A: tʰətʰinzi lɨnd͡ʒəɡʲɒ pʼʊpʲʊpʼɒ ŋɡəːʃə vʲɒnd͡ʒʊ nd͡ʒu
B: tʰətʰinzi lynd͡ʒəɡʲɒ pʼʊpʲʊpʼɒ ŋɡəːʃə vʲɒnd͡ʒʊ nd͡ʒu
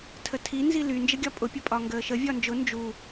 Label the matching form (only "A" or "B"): B